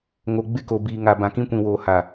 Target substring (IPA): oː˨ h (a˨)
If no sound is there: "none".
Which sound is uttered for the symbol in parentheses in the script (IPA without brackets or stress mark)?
a˨